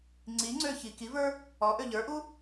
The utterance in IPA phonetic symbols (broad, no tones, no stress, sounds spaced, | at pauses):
ŋ͡ǀ i ŋ͡ǀ ø ç i k i v ə˞ | ɔ ʔ ø ʎ ə˞ ʔ u